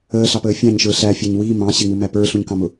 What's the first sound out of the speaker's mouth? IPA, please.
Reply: əː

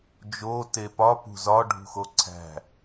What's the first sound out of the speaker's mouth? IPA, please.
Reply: d͡ʒ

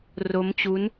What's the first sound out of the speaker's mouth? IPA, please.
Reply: r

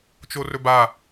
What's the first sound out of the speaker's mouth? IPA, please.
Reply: t͡ʃ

